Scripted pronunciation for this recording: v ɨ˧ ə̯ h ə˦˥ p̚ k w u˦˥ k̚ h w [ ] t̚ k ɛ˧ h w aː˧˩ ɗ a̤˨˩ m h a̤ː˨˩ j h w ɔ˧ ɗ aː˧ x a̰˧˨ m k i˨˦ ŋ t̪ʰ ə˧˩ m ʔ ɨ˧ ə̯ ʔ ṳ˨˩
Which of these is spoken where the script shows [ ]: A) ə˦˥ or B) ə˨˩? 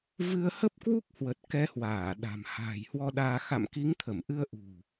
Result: B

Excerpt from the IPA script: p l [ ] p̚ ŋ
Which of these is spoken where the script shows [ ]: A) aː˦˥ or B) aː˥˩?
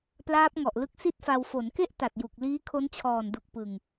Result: A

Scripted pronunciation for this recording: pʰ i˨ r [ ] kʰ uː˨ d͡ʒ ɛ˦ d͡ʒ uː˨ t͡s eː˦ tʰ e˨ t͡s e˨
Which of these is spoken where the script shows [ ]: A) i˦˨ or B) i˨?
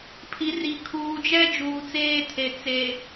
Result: B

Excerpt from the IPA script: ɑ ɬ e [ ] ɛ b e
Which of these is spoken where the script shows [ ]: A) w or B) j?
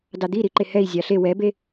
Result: A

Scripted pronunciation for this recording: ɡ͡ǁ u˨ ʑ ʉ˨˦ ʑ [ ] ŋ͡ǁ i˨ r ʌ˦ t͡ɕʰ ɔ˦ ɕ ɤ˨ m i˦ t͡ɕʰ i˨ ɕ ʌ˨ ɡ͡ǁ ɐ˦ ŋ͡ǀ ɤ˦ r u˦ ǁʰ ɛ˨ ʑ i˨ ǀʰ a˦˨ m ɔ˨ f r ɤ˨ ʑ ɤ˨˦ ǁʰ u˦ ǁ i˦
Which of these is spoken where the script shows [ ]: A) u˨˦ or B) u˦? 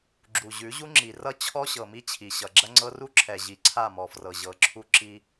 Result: B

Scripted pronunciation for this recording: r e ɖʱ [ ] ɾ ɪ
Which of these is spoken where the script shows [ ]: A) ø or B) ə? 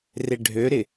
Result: A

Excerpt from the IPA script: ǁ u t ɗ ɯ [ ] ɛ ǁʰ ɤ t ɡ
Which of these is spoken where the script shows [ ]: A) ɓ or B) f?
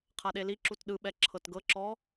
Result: A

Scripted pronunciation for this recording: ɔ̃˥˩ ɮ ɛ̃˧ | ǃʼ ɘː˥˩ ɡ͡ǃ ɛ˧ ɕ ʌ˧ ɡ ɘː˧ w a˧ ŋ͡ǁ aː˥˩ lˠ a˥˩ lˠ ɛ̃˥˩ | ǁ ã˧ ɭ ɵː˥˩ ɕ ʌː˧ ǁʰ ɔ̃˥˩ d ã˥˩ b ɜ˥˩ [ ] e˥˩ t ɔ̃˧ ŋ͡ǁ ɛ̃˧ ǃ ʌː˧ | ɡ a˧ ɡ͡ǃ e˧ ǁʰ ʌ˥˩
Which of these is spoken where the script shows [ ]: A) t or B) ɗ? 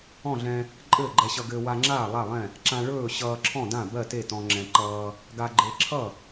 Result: A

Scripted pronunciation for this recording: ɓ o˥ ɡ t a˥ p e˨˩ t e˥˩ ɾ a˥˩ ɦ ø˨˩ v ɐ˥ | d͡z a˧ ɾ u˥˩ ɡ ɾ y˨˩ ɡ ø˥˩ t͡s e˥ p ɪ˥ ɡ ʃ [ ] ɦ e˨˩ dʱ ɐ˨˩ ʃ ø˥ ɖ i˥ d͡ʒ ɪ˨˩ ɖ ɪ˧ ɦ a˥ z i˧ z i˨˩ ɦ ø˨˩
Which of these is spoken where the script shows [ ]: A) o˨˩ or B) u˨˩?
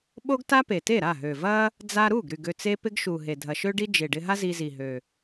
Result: B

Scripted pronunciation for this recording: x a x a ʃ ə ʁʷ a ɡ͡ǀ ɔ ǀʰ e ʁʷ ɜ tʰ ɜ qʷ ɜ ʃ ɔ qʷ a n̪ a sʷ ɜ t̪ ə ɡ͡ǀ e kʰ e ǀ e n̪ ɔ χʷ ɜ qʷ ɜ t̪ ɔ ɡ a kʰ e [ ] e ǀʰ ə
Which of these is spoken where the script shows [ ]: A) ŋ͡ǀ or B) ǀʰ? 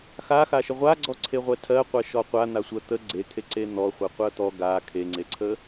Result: A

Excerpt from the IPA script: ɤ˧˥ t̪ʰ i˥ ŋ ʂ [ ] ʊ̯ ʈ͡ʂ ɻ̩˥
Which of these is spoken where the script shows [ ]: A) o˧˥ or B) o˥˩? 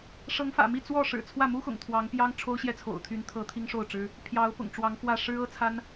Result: B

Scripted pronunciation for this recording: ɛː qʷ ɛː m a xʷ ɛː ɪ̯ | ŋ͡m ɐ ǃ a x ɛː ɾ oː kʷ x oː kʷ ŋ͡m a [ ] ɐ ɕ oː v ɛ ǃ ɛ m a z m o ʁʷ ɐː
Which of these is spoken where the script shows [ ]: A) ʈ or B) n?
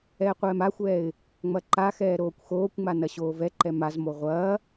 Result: B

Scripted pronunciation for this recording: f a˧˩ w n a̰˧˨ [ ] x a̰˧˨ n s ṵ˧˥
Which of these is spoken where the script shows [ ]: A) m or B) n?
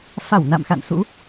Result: A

